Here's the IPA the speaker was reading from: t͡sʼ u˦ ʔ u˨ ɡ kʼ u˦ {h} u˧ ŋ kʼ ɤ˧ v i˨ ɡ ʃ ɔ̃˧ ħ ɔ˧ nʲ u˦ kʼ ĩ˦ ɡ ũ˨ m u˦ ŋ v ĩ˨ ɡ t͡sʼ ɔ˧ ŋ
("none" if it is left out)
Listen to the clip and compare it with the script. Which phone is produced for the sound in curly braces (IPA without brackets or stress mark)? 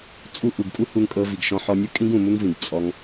h